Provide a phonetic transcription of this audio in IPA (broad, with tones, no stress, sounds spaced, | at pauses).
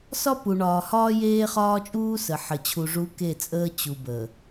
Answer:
s ɒ˦ p u˨ ɳ ɒː˨ h ɒː˦ j eː˦ χ ɒː˦ t͡ʃʼ uː˦ s ə˨ ħ ə˨ t͡ɕʰ u˨ ʐ u˨˦ k e˦˨ t͡sʼ əː˦ t͡ɕ u˨ b əː˨